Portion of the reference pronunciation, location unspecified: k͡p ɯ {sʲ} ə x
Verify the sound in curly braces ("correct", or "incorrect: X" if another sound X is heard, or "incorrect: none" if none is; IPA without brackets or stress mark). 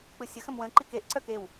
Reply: correct